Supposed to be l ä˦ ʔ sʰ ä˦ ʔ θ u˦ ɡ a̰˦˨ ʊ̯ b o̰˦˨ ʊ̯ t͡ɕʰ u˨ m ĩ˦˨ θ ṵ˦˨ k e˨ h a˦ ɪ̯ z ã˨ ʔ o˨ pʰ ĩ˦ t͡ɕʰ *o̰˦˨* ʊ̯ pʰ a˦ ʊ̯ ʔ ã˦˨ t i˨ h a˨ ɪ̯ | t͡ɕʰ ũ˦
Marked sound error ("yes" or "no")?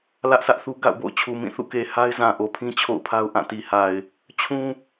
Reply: no